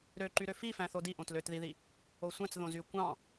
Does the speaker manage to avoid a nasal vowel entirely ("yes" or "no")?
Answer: no